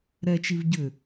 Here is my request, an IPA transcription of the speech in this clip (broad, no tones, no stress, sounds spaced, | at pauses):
ɾ ɛ t͡ʃ i v ɟ ʏ